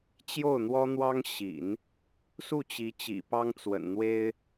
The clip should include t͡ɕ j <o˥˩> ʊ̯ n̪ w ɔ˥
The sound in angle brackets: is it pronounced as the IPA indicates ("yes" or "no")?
yes